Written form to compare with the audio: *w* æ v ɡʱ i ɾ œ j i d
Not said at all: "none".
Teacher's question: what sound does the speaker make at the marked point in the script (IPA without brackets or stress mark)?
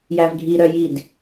j